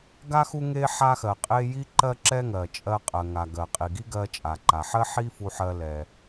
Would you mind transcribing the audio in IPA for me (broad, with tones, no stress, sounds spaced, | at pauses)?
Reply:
ɡ a˥ x u˥ ŋ e˥ ħ a˥ x ɜ˩ qʼ e˥ j i˥ ǃ ɜ˥ ǁ ɛ˥ ŋ ɜ˩ t͡ʃʼ ɜ˧ qʼ ɜ˩ ŋ a˩ ɡ ɜ˩ qʼ i˩ ɡ i˥ ɡ ɜ˧ t͡ʃʼ a˩ ǃ a˩ ħ ɜ˥ ħ i˥ f u˧ ħ ɜ˧ l ɛ˩